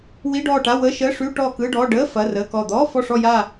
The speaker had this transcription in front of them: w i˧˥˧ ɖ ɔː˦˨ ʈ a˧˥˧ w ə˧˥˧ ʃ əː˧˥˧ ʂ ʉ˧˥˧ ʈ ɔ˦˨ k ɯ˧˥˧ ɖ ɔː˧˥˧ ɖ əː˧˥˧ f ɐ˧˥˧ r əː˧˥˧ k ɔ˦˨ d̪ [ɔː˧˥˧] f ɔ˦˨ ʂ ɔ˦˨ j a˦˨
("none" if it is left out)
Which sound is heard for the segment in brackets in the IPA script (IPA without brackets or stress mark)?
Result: ɔː˧˥˧